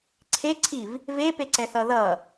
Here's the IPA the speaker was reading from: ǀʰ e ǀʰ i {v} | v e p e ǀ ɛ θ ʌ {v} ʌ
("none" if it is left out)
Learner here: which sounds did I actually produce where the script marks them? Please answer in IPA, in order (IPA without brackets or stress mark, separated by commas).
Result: v, ð